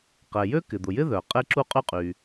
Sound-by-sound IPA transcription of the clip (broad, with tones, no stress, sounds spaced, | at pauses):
q ɛ˩ j ø˥ k ɪ˩ d̪ ʊ˩ j ɪ˥ ð œ˩ qʼ e˥ ǁ u˥ qʼ y˥ qʼ y˩